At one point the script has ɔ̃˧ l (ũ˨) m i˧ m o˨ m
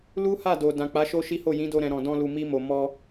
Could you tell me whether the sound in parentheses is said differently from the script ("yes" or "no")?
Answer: yes